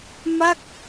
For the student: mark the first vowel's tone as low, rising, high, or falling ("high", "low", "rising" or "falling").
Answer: falling